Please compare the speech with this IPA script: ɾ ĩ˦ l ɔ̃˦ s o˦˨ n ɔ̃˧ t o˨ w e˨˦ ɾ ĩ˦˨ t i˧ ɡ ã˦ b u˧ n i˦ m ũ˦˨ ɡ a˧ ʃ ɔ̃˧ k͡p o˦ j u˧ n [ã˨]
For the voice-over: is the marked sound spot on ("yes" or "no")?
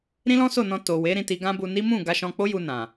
yes